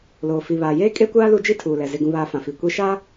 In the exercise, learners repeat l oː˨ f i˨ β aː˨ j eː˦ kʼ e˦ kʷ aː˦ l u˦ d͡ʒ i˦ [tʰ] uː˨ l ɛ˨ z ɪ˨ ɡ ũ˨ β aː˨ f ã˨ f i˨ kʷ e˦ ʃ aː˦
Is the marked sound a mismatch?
no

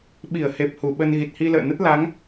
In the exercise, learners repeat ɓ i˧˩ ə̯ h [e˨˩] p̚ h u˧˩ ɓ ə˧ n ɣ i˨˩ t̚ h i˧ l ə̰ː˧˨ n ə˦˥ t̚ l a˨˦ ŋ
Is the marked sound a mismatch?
no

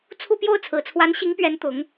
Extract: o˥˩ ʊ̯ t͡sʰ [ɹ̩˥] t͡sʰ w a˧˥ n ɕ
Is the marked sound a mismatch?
yes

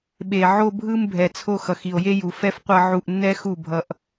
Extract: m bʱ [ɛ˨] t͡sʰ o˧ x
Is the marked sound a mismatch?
no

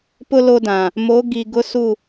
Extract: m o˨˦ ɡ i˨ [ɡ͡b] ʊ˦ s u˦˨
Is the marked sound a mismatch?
yes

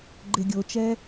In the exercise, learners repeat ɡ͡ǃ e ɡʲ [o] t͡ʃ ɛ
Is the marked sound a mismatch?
no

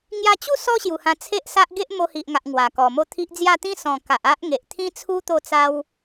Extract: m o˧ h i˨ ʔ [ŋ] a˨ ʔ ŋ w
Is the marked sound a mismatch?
no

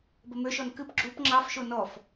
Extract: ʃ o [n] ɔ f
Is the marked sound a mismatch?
no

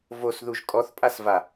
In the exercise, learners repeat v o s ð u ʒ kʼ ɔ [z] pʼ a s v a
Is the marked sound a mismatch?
yes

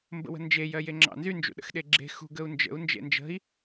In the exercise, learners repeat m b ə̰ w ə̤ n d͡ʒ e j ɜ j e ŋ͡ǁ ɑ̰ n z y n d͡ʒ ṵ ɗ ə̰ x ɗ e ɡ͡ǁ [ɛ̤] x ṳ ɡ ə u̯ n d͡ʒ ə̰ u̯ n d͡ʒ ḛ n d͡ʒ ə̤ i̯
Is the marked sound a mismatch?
yes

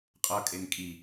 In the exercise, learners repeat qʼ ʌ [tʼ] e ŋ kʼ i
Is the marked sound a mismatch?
yes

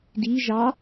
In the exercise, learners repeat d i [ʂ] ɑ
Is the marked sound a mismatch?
yes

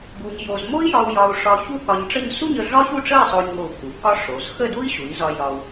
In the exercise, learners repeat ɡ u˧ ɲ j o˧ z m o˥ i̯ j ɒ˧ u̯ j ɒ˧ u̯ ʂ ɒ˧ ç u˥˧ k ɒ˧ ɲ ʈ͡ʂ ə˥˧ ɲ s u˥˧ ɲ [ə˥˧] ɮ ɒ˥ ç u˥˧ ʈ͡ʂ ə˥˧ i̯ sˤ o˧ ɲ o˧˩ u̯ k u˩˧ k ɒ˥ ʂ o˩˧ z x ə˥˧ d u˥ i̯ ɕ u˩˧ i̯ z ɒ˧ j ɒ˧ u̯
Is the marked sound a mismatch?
yes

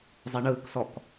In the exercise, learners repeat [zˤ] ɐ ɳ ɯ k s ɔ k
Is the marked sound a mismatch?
no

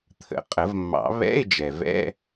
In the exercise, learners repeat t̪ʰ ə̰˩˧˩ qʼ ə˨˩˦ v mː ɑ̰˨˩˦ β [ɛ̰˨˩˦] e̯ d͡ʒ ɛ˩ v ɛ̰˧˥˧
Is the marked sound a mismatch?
yes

